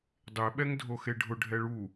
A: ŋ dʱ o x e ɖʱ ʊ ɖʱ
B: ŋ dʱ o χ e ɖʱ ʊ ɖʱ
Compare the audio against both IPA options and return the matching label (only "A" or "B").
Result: A